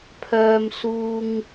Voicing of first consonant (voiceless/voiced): voiceless